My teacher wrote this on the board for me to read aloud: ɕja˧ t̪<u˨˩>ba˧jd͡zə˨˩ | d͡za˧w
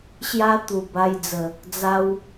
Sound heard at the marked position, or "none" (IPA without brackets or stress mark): u˨˩